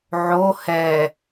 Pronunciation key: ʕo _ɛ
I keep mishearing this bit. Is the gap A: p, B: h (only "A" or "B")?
B